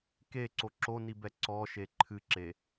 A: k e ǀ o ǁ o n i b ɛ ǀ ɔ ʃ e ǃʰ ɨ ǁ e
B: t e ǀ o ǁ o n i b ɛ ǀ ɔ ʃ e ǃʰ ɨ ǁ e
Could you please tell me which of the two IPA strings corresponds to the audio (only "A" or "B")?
A